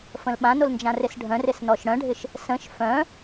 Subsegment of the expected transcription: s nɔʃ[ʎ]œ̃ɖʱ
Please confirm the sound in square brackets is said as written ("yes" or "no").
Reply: no